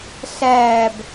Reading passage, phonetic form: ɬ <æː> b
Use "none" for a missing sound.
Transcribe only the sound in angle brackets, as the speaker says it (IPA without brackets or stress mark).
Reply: æː